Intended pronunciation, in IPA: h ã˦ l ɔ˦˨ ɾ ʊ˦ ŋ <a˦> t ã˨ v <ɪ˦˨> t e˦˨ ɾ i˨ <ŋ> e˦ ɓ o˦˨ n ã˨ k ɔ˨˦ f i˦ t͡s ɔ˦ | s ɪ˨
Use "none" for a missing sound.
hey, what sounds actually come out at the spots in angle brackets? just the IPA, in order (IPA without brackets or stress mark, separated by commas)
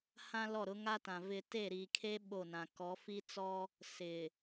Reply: a˦, ɪ˦, kʰ